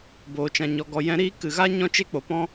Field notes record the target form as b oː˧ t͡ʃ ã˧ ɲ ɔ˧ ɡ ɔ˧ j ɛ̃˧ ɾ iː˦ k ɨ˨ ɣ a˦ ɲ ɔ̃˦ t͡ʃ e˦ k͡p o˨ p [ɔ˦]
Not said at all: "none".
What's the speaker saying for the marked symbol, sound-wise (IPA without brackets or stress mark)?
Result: ɔ̃˦